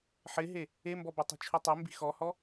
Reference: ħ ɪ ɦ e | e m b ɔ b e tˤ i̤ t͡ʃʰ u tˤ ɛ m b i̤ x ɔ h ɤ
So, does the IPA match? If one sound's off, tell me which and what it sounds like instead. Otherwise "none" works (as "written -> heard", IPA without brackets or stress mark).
ɤ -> ɔ